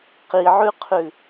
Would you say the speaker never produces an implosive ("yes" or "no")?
yes